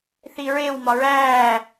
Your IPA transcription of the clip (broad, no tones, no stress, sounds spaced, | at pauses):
θ i ɹ e w m ɒ ɹ æː